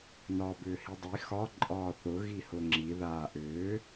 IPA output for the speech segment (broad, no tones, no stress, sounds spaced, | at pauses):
n ɒː b ʏː h i dˤ i x ɒ ǃʼ ɒː θ ʊ ɣ i h ʊ ŋ͡ǁ i ð aː ʔ ʏː